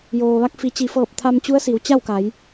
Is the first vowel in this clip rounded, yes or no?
yes